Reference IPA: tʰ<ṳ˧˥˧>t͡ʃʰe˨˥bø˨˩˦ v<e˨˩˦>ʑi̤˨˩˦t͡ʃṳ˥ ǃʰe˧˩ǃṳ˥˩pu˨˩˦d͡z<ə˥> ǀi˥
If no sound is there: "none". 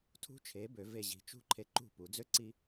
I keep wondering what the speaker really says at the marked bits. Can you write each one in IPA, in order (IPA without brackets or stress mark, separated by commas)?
ṳ˥, e˧˩, ø˥